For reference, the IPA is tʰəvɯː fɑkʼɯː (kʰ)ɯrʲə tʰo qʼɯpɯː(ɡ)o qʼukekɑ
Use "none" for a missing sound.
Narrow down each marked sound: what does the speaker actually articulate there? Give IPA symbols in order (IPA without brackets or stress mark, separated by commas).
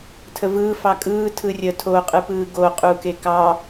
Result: tʰ, ɡ